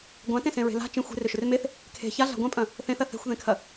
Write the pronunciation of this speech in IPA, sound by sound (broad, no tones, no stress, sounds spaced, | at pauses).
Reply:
ɡʷ ã t ẽ s ẽ ɹ e̤ l a̤ t͡ʃ ẽ xʷ e̤ r ʏ ʃ ʏ r m e θ | kʰ e̤ ç a ɮ a̤ ɡʷ ã pʼ ɐ̃ | θ ẽ θ ɐ θ e̤ xʷ ð ẽ kʰ ɐ